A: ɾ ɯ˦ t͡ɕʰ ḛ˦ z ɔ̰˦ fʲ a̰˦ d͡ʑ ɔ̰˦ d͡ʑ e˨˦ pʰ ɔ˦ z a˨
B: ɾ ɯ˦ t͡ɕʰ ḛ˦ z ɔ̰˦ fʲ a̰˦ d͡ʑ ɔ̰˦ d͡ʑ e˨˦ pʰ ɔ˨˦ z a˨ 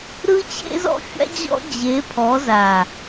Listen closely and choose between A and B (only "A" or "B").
B